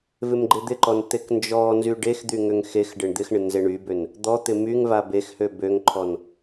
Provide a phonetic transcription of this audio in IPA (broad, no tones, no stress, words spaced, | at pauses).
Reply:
vɪmɡ͡ǃɪd̪ɪǃɔn t̪eknd͡ʒɔnzy ɖexd̪y ŋøŋxexɖɪɳ d̪ɪxɳɪ nzeɳybøn | d̪ɔt̪ɪ myŋ vabexhø bøŋǃʰɔn